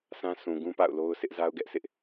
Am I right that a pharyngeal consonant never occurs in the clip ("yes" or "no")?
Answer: yes